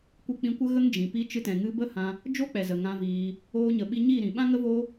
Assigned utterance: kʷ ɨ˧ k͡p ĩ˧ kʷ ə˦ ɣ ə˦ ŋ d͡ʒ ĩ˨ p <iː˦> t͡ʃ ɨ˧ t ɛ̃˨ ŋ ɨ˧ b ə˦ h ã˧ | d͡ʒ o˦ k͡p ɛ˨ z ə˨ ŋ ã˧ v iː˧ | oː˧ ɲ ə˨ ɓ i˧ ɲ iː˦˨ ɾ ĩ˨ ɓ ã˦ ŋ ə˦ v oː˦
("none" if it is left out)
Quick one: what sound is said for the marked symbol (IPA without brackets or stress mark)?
i˦